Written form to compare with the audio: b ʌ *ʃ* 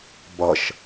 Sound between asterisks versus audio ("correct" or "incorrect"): correct